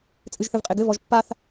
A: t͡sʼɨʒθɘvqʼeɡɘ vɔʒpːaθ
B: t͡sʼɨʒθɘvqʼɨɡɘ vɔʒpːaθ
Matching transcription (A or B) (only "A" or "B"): A